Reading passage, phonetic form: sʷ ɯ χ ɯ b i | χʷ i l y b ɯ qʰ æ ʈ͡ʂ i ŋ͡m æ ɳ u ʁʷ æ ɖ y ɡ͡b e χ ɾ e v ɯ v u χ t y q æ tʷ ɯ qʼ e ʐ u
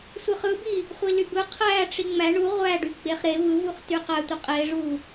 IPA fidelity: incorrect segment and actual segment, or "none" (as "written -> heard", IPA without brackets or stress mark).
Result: none